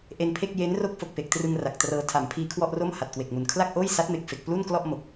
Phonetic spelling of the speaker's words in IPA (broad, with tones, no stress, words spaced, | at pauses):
ʔe˧npʰe˥˩k̚ je˦˥n ro˥˩k̚fo˨˩k̚pe˨˩k̚trɯ˧ŋ ra˨˩k̚trɤː˧ tʰa˩˦mpʰiː˧kʰwɔ˥˩ʔro˥˩m ha˨˩t̚kwe˨˩k̚mu˨˩n kʰla˥˩k̚ʔoː˥˩jsa˦˥t̚me˨˩k̚ fe˨˩k̚ plu˥˩nklɔ˥˩ʔ mo˨˩k̚